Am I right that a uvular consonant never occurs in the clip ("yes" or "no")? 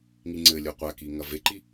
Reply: no